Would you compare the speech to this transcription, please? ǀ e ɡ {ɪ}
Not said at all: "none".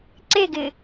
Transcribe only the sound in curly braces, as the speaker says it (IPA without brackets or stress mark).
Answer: ɪ